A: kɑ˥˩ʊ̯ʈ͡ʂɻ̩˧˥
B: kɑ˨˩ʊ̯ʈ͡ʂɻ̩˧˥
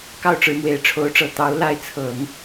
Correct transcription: A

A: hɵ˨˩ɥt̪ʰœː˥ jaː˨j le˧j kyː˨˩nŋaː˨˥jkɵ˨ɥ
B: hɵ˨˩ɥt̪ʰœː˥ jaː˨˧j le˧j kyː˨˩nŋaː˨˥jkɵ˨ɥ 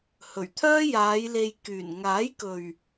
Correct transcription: B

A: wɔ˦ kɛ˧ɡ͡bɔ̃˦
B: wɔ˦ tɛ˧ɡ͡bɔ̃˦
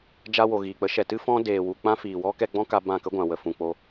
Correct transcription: A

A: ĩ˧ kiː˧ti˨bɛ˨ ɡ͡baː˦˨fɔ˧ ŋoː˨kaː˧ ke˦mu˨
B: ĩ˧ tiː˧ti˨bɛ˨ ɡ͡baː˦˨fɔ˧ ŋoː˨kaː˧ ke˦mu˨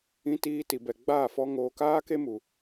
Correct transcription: B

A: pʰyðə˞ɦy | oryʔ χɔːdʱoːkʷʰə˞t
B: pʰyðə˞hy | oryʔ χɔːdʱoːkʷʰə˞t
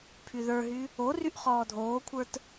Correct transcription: A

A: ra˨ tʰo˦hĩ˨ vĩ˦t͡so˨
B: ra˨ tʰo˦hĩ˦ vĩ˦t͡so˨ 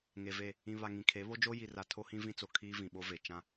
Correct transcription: B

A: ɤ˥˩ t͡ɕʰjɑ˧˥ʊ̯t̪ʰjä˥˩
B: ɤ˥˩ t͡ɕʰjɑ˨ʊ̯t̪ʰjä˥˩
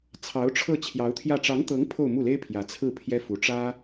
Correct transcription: A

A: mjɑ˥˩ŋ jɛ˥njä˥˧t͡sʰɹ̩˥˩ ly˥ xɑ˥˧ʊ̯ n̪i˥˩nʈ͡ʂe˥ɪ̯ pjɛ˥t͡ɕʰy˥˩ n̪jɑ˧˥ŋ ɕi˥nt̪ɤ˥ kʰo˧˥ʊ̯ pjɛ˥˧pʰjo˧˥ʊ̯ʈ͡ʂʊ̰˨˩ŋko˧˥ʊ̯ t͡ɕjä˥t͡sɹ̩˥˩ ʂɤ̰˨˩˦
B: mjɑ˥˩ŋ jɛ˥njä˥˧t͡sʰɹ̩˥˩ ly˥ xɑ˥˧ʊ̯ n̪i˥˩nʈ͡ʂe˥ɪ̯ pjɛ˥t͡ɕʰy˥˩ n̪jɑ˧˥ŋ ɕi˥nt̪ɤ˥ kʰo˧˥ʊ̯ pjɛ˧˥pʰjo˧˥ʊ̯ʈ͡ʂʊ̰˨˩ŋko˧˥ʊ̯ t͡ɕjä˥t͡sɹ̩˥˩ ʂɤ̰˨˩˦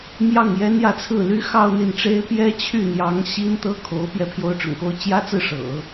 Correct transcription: B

